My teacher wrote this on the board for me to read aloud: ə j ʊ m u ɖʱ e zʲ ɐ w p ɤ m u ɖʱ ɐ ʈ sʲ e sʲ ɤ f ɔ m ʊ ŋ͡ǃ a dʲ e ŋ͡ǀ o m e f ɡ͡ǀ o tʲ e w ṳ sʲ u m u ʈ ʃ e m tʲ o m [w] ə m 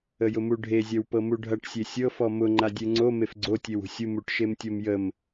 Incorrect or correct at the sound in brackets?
incorrect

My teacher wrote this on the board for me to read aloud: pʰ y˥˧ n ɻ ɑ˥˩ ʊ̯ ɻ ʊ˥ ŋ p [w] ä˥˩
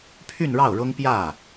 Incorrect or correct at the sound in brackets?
incorrect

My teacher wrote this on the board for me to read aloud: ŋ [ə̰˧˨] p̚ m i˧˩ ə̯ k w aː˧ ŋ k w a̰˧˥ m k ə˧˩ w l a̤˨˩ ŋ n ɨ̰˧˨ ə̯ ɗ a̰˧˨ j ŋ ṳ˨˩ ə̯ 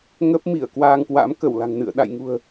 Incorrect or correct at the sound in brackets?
incorrect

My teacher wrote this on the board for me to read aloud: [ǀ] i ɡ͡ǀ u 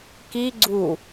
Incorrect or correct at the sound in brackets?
incorrect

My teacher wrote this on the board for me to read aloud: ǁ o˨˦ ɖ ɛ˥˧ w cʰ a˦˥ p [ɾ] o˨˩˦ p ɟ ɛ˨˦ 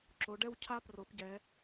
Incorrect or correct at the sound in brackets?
incorrect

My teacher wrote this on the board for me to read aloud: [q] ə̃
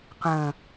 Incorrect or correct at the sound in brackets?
correct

